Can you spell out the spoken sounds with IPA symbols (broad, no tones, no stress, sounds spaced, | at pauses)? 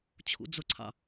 t͡ɕʰ ṵ d͡z ʊ ǀʰ ɑ̰